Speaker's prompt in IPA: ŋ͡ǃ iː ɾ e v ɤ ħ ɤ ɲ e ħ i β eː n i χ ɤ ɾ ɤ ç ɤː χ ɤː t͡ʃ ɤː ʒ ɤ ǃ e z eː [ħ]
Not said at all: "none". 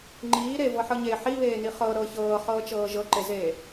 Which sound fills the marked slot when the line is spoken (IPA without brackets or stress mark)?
none